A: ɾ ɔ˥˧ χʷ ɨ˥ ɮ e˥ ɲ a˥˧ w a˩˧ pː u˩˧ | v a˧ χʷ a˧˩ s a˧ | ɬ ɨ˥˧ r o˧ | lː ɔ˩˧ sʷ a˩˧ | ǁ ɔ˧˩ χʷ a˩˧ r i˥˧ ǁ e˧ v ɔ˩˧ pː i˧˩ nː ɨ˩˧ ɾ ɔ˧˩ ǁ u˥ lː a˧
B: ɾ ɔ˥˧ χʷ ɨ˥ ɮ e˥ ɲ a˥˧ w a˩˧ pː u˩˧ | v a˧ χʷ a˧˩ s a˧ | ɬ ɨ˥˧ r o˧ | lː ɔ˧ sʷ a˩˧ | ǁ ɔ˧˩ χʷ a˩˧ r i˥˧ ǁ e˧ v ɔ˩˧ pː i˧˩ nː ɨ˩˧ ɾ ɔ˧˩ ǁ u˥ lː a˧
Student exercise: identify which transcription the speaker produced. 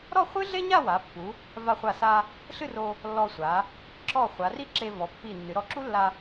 B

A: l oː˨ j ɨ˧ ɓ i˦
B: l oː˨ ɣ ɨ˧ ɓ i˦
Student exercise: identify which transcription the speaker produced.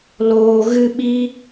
B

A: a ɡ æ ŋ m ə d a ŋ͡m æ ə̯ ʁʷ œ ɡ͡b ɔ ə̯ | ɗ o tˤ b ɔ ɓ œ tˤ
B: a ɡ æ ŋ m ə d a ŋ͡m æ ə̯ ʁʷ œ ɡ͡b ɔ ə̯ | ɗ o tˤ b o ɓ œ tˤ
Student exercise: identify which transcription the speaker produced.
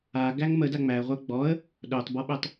A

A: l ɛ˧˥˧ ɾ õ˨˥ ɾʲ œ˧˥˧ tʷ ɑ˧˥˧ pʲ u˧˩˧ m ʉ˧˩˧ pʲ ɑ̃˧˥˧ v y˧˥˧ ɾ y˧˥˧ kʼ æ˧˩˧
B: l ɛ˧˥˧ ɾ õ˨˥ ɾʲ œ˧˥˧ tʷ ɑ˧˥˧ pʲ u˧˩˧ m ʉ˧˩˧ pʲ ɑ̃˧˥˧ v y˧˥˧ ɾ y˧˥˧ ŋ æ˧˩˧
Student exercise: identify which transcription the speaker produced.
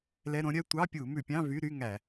B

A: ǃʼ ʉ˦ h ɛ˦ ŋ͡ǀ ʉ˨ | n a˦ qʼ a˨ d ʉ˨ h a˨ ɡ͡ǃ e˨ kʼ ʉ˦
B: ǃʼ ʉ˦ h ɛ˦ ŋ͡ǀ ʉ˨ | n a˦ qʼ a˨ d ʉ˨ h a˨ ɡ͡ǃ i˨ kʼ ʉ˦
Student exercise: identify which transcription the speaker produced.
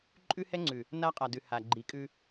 B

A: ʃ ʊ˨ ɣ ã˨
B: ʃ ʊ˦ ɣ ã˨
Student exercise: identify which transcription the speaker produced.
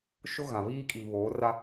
B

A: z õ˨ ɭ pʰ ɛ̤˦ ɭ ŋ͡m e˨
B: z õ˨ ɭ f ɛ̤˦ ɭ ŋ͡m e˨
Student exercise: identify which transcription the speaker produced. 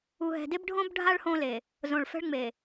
B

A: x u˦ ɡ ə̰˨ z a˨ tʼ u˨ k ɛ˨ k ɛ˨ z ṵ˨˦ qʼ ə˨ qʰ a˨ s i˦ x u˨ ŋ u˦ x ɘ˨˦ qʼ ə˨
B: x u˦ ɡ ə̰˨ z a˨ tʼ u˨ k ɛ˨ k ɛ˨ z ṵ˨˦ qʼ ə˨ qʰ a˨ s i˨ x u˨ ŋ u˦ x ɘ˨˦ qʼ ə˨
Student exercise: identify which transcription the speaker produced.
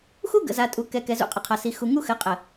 B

